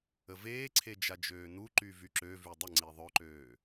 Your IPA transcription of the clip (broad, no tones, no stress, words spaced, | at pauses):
əveːǀʰe d͡ʒad͡ʒøːnuǃy vyǁøvy dˤəŋ͡ǀi ðˤœǃøː